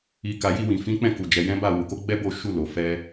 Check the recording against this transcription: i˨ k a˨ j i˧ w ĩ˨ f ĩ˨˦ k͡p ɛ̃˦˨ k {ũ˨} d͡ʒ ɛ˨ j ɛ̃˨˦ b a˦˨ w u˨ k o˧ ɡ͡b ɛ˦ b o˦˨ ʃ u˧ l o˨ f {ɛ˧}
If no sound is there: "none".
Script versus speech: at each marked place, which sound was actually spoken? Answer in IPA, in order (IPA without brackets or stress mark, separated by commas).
u˨, ɛ˧